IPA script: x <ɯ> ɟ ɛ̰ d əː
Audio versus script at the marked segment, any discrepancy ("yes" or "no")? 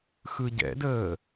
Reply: no